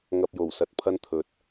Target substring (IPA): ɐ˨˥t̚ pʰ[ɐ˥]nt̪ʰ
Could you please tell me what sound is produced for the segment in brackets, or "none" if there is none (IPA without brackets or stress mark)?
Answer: ɐ˥